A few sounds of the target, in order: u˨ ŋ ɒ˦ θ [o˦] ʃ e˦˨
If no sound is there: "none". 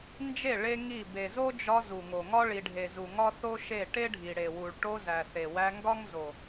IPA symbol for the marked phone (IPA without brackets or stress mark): o˦